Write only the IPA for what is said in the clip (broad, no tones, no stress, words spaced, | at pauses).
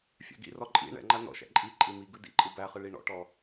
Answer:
fʲa̰ɡḭrɔ ǃʼḭ ɳɛ̰ŋ͡ǃa nɔ̰ʃæ̰ ǃʼi ǃʼimiɡɯ dḭǃʼɯ bæχɯ ɭiɳɔ̰ʈɔ